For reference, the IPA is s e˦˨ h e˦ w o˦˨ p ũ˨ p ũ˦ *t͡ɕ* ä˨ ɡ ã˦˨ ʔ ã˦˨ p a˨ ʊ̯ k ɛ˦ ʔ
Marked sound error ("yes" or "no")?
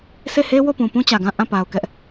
no